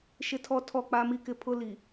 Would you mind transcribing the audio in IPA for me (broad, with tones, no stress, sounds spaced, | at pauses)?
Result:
ʃ ɪ˦ tʰ ɔ˦ tʰ ɔ˦˨ k͡p a˦ m i˦ k ɪ˦ pʰ ʊ˦ l i˨